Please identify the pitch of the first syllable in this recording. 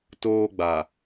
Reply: high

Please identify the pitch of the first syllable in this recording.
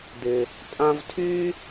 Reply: high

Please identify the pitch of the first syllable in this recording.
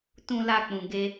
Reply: high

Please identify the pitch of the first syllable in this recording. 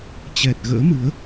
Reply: low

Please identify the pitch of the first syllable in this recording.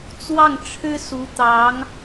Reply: falling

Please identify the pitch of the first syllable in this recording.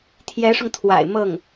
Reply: rising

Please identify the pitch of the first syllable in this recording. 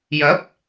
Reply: rising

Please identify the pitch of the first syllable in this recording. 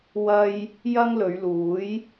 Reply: high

